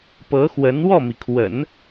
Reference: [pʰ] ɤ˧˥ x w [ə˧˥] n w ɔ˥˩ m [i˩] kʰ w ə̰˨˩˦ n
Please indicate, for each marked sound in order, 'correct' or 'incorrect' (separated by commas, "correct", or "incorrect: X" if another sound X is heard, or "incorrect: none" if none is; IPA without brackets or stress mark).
incorrect: p, correct, correct